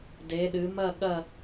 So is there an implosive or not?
yes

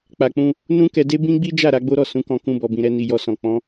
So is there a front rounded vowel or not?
no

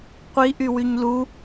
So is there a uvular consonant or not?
yes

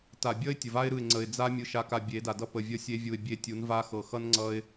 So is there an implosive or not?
no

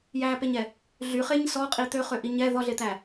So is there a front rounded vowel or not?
yes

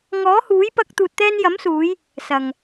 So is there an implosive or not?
no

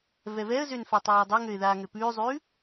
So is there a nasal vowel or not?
no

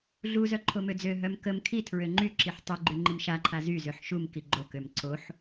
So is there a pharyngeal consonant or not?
yes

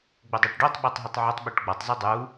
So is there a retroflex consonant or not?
yes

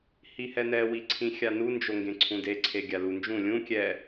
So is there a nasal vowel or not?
yes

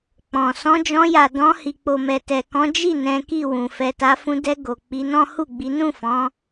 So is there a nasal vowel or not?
yes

